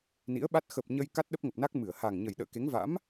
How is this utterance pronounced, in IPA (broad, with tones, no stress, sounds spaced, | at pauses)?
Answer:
n ḭ˧˥ ə̯ ɓ a˦˥ t̚ x ə˨˩ p̚ ɲ ə˧ j k a˦˥ t̚ ɗ ə˦˥ p̚ ŋ ə˨˩ p̚ n a˦˥ k̚ m ɨ˧˩ ə̯ h a˨˩ ŋ ɲ ə˨˩ j ɗ ə̰ː˧˨ k e˨˦ ŋ v a̰˧˥ m